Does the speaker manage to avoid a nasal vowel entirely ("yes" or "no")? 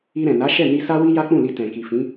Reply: no